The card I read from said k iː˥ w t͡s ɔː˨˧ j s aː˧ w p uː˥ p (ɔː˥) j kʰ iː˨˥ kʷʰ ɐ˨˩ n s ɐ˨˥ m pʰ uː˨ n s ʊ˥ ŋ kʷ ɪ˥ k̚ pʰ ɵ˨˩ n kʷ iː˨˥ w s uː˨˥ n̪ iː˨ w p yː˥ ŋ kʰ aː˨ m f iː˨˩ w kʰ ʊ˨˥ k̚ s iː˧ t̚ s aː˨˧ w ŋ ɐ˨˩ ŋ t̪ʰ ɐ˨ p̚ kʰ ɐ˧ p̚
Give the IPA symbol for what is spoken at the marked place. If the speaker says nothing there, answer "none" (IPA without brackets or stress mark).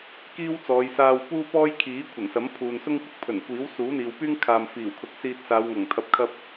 ɔː˥